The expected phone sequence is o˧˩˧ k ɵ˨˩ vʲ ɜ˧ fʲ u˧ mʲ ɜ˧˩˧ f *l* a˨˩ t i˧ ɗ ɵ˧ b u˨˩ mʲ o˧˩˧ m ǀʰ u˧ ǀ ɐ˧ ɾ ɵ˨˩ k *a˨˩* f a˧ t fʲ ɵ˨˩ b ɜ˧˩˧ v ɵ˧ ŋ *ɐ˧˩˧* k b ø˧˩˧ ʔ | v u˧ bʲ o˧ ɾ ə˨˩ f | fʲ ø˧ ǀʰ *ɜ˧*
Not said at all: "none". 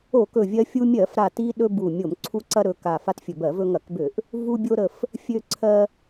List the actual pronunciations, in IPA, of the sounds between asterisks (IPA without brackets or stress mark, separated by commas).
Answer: ɾ, a˨˩, ɐ˧˩˧, ɜ˧